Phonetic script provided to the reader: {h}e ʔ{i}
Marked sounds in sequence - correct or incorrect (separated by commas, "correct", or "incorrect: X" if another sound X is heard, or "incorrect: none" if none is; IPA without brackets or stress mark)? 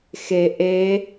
incorrect: x, incorrect: e